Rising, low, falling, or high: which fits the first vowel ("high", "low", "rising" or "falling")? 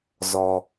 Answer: low